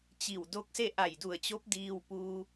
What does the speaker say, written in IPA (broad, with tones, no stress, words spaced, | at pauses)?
t͡ɕi˧˩wdo˧˥k̚se˥˨ ʔa˧˩jdu˧˩ə̯t͡ɕo˧˥p̚ diː˧w puː˧